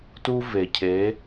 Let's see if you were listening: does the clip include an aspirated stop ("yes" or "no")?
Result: yes